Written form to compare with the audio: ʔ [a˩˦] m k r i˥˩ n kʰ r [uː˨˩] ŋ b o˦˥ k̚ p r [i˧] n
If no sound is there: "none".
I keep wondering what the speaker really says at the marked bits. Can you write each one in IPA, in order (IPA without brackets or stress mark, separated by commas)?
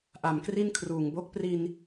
a˨˩, uː˨˩, i˧